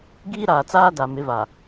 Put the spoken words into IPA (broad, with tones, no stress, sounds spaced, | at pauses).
ɡ iː˦ ɾ aː˨ t͡s aː˦ d a˨ m ɪ˨˦ v a˨